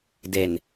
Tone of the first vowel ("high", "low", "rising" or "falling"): low